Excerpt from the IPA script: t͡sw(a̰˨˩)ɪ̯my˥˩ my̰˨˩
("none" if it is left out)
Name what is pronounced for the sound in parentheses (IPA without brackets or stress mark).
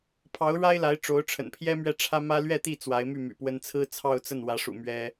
a˧˥